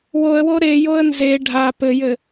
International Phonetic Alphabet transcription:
w o ə̯ w o ɾ e j o ə̯ n z e ɖʱ a p ɘ j ɘ

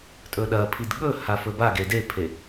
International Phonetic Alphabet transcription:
tʼ ɵ ɗ ɐ pʰ i d ɠ ɵ h a f ɵ b a ɡ e d e pʰ e

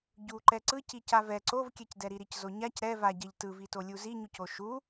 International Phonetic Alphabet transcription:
ɟ u ǃ ɛ ǀ ɯ c i c a v ɛ ǀ o v kʲ ɛ c d ɛ ɾ i ɾ i c z o ɲ a c ɾ ɛ v a ɟ ɛ ʎ t ɯ v i t o lʲ u z i ɲ u c o ʃ u

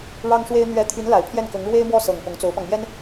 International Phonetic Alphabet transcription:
ɻ ɑ˥ ŋ ʂ w e˥ ɪ̯ n̪ ɥ ɛ˧˥ t̪ʰ y˧˥ n l a˨˩ ɪ̯ pʰ j ɛ˥˩ n k ɤ˧˥ ŋ ɻ w e˥ ɪ̯ m w ɔ˥˩ s ɤ˨˩ ŋ p ʊ˧˥ ŋ t͡s o˧˥ ʊ̯ p ɑ˧ ŋ m j ɛ˥ n

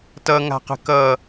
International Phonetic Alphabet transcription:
t ʌ ŋ a̤ q ə̤ k ʌ

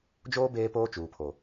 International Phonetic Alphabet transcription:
d͡ʒ oː˦ b eː˦ p oː˦ t͡ʃ uː˨ pʰ o˨

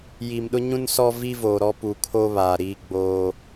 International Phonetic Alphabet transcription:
j i˨ m ɗ ʊ˦ ɲ ũ˦ n s ɔ˦ v i˦ v oː˨ ɾ ɔ˦ p u˨ kʰ o˦ β aː˨ ɾ iː˦ ɡ͡b oː˦

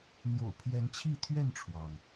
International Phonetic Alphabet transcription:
n̪ j o̰˨˩ ʊ̯ pʰ j ɛ˨˦ n t͡ɕʰ i˥˨ t̪ʰ ɥ ɛ˥˨ n ʈ͡ʂʰ w ɑ˩ ŋ

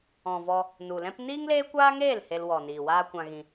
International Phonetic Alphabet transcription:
ɔ̃˨ v ɔ˧ | n u˨ l ɛ̃˦ p n iː˦ ŋ l eː˦ kʷ aː˦ ŋ eː˦˨ l h e˧ l w ɔ˨ n iː˨ w aː˧ kʷ ã˧ ɣ ĩ˧

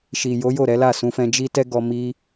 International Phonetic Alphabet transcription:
ʃ i˨ j o˨˦ j o˦˨ ɾ ɛ˨˦ l a˦˨ s ũ˧ f ɛ̃˧ d͡ʒ i˦ t ɛ˦ ɡ ɔ˧ m i˧

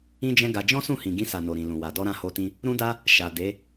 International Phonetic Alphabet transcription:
ĩ˦ d͡ʒ ɛ̃˦ ɡ a˧ d͡ʒ ɔ̃˦ s ũ˦˨ h ĩ˨ ɡ ĩ˧ s a˨ n o˨ ɾ ĩ˨ l ũ˨ w a˨ d ɔ˧ ɾ ã˧ h o˧ t ĩ˧ | ɾ ũ˦ d a˦ | ʃ a˨ d e˨˦

